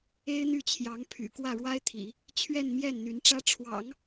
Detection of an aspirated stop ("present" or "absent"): present